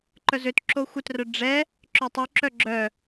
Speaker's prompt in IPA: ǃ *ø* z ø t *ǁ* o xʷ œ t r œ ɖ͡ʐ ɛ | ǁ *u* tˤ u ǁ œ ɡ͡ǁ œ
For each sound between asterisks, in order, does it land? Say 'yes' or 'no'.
no, yes, no

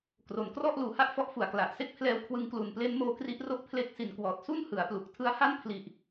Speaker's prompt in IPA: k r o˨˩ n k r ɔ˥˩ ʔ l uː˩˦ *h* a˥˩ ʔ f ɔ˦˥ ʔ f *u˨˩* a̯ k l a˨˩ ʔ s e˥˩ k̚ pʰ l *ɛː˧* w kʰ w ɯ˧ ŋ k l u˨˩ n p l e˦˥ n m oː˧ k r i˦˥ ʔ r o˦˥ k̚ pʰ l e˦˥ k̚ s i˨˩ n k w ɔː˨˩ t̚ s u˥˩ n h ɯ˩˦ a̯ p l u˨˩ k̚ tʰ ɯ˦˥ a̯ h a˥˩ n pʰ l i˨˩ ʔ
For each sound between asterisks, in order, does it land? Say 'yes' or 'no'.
yes, yes, yes

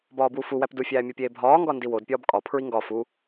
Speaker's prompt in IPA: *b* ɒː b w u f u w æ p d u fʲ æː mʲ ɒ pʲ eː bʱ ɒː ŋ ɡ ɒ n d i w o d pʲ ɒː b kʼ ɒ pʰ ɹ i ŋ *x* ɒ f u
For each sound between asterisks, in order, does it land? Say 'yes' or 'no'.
yes, no

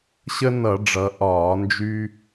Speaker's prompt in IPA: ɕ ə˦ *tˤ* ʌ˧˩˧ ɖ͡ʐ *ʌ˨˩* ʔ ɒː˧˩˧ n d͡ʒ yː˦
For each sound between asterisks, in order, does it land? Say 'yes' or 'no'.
no, no

